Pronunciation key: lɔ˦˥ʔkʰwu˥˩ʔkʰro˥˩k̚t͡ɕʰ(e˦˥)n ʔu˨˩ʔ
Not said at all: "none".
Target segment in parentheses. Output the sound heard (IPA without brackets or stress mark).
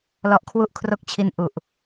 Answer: i˦˥